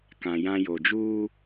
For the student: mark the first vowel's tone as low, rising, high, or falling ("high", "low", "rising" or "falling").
low